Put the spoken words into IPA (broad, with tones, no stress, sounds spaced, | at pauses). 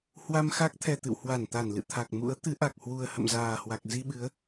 h w a˧ m x a˦˥ k̚ t̪ʰ ɛ˨˩ t̪ ɨ̰˧˨ w h w a˧˩ n t̪ a˧˩ n l ɨ̰˧˨ t̪ʰ a˨˩ k̚ m ṵ˧˥ ə̯ t̪ ɨ˨˦ ʔ a˨˩ k̚ h w u˨˩ ə̯ h ə̰˧˨ m z aː˨˩ h w a˨˩ k̚ z i˧ ɓ ɨ˨˦ ə̯